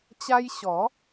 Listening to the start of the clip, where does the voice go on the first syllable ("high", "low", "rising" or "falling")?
high